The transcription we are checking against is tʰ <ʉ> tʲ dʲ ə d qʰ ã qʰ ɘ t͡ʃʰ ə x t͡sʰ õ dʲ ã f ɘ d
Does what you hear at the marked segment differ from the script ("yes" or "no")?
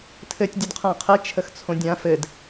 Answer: yes